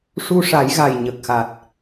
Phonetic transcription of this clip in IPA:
ʂ u˧ ʂ a˨˩˦ j ɣ a˨˩ j ɲ ə˨˩ k̚ x a˨˩ t̚

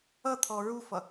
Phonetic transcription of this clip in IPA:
ʌ t̪ʰ ɔ ɹ u f ʌ

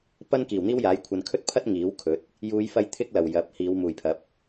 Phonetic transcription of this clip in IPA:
p ɐ˥ n k iː˨˩ w n̪ iː˥ w j aː˨˥ j kʷʰ ɐ˨ n kʰ ɵ˥ t̚ pʰ ɐ˥ t̚ ŋ iː˨˥ w kʰ ɵ˨˥ t̚ | j uː˨˧ j f ɐ˧ j t̪ʰ ɪ˥ k̚ l ɐ˨˩ w j ɐ˨˥ p̚ h iː˨˧ w m uː˨˩ j pʰ ɐ˨˥ p̚

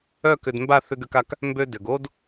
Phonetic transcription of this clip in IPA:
œ˦˨ k ʏ˨ d m b a˦˨ θ ʏ˦ ɡ ø˦ k a˦ k | m b ø˦ d ʏ˨ ɡ o˦ d

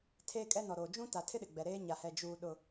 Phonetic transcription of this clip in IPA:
tʰ eː˦ kʼ ɛ˦ n ɔ˨ ɾ oː˨ d͡ʒ ũ˦ t a˨ tʰ ɪ˦ ɗ ɪ˨ ɡ͡b ɛ˨ ɾ eː˦ ɲ a˨ h ɛ˨ d͡ʒ uː˨ ɗ ʊ˨

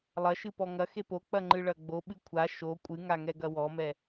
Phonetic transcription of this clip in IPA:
lˠ ɐ ʃ ɨ p ɔ ŋ ɐ x e p o k͡p ɐ ŋ͡ǃ ɨ ɭ ɐ ɡ͡b o ɓ ɨ kʷʰ a ʃ o kʷʼ ɨ ŋ a ŋ ɛ ɡ ɐ w ɔ m ɛ

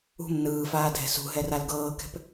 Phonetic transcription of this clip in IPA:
ṳ m n ɯː f aː dʱ ɛ̤ s ṳ ɦ ɛ r a l ɡ ɤː k ɛ̤ p

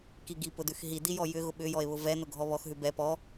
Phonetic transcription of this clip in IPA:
k i ɡ i p ʊ d ʉ x ɦ i d i j ɔ j ʏ ɣ ʊ ɓ ʏ j ɔ e̯ β ʊ v ɛ n ʊ ɡʱ ɔ β ɔ x ɦ ʉ b ɛ p ɔ

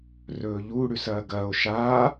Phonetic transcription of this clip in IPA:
r ɵː ʎ u ɽ ʉ s ɐː ɡ ɐː o̯ ʃ a

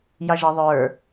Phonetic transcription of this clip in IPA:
j ɑ ʒ ʌ ðˤ ə˞

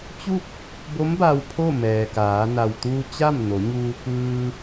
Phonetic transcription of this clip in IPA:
t͡ɕ u˥˨ k̚ | b o˧˥ m b a˧ w pʰ o˥˨ m ɛː˩ k aː˩˧ n a˩ w t̪ uː˧ t͡ɕ a˥˨ m n o˩˧ ɲ uː˧ k ɯː˧

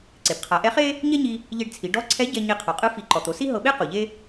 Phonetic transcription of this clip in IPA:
ǀ e˩ b qʰ a˩˧ ʔ ɛ˧˥ χ e˥ | ɲ ɛ˥ ɲ i˧ | ʎ e˧ ɖ t͡sʰ i˩˧ ɖ ɔ˧˥ ǀʰ ɛ˧˥ ɟ ɛ˧ ɲ e˧ qʰ ɔ˩˧ qʼ ɯ˧˥ f i˩˧ ǃ ɔ˩ t̪ o˩˧ s i˥ ɦ ɤ˧ ɓ e˥ q u˩ ʎ e˥

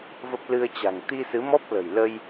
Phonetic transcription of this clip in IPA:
v ə˦˥ p̚ l ɨ˧ ə̯ t͡ɕ a̤˨˩ ŋ t̪ i˧ s ɨ˨˦ m ɔ˦˥ p̚ l ə̤˨˩ j l ə˧ j

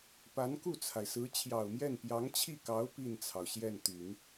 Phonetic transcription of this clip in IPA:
p a˧˥ n k u˥˩ t͡sʰ a˩ ɪ̯ s ɹ̩˧˥ t͡ɕʰ j ɑ˨˩ ʊ̯ m j ɛ˥˩ n p j ɑ˧˥ ŋ t͡ɕʰ i˥˩ k ɑ˧˥ ʊ̯ p i˥˩ n t͡sʰ ɑ˩ ʊ̯ ɕ j ɛ˥˩ n t̪ y˨˩˦ n

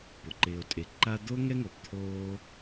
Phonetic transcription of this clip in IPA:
p ʊ˩ ǃ ɪː˨ o̯ tʼ e˨ ǃ a˦ d̪ o˥ ŋ ɛ˦ ŋ o˩ b t̪ʰ oː˦

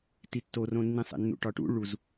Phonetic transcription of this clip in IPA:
t i tː o r õ nː ĩ sˤ ḛ nː ṵ ʈ ɒ ʈ ṵ ɭ u z

